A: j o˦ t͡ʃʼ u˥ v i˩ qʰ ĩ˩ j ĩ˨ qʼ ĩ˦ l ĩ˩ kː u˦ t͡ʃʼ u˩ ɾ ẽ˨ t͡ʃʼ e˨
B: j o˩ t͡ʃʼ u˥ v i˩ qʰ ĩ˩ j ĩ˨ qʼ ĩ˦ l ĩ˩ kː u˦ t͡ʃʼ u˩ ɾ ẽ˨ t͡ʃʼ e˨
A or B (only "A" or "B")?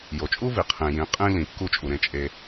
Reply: B